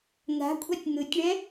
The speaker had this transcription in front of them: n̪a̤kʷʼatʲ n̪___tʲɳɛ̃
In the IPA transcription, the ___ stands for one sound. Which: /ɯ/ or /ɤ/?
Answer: ɯ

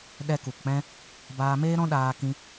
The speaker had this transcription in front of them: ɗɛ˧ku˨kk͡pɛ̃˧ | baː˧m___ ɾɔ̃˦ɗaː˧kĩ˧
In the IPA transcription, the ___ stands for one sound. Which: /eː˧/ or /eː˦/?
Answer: eː˦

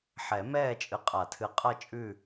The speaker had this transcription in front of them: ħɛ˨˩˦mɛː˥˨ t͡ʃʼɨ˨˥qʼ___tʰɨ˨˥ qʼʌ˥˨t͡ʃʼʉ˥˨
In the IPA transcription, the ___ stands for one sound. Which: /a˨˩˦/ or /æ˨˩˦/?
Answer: a˨˩˦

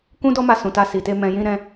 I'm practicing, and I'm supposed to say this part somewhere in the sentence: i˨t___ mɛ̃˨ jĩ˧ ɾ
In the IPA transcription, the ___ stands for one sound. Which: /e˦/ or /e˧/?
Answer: e˧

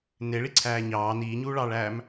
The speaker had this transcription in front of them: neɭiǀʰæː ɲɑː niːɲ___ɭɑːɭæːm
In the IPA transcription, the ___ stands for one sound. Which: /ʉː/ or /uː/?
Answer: uː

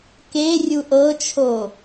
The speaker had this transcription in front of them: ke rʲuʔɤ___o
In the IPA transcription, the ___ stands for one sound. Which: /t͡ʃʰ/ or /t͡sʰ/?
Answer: t͡ʃʰ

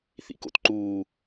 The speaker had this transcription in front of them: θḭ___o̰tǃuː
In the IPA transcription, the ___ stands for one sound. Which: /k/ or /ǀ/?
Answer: k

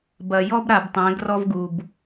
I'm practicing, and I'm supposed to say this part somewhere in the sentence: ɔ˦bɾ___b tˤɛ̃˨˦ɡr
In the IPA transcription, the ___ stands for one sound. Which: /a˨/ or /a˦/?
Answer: a˨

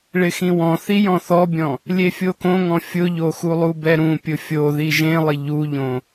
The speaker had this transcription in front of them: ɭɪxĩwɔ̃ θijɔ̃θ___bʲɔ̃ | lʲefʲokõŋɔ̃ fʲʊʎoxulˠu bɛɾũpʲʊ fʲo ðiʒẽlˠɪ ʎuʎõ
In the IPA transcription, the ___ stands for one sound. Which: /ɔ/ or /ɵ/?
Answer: ɔ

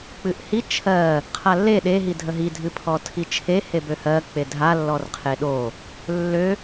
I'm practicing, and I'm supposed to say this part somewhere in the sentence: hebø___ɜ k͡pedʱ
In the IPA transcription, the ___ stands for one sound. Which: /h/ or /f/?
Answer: h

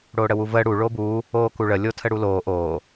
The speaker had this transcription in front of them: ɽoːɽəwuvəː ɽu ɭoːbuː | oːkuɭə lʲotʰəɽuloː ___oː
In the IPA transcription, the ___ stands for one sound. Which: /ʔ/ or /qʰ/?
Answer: ʔ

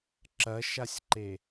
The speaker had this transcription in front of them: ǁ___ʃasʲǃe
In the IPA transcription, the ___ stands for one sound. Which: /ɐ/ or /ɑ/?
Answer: ɐ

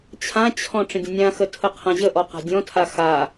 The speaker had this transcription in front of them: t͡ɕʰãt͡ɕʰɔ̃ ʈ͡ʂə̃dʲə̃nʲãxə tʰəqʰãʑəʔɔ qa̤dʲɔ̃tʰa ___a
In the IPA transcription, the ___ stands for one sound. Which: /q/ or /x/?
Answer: x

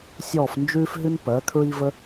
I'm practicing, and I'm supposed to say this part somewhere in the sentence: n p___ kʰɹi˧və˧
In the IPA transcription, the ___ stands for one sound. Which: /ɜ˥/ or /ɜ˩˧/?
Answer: ɜ˩˧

